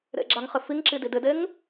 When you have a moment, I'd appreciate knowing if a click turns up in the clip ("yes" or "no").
yes